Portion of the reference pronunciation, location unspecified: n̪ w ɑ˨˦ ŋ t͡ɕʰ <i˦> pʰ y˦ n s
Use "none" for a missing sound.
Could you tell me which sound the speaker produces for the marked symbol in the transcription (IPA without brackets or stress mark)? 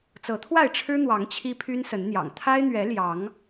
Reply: i˦